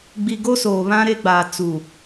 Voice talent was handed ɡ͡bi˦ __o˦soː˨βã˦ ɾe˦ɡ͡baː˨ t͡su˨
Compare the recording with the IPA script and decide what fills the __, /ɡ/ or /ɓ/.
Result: ɡ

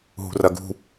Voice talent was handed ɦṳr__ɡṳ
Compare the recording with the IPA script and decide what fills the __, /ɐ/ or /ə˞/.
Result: ɐ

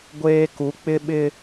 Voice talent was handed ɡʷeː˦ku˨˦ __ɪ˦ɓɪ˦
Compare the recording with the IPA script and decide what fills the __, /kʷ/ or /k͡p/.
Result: k͡p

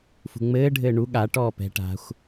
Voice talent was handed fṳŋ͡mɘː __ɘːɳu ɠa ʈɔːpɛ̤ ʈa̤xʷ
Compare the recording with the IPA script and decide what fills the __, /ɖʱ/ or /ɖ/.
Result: ɖʱ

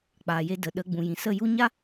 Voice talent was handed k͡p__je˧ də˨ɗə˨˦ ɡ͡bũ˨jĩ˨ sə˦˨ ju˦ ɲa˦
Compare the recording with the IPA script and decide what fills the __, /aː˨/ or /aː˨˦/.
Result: aː˨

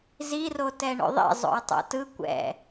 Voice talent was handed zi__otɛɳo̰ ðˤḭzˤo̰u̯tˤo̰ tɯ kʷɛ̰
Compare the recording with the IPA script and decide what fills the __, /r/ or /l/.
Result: r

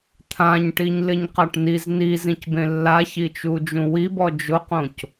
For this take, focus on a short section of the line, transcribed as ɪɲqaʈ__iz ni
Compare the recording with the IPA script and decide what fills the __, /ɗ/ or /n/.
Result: n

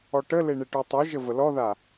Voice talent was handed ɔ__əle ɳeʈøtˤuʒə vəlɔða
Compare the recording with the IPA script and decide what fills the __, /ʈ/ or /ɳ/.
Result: ʈ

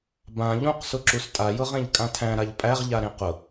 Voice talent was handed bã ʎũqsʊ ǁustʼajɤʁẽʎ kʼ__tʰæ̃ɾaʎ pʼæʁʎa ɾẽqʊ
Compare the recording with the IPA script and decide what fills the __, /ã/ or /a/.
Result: ã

